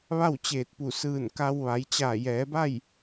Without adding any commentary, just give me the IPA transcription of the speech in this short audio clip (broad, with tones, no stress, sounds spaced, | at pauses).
ʋ a˥˨ w t͡ɕ eː˧˩ t̚ p u˧˩ s ɯː˧˩ n k a˧ w ʋ a˩˧ j t͡ɕ aː˧˩ j ɛː˩˧ b a˥˨ j